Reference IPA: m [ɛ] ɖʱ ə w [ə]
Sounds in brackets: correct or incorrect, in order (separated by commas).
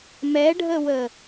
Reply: correct, correct